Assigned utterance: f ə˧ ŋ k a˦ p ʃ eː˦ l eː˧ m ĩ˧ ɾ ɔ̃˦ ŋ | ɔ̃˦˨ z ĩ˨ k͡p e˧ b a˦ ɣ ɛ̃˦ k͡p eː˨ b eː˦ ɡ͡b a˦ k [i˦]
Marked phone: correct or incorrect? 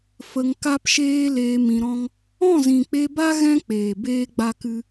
incorrect